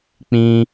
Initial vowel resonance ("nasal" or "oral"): nasal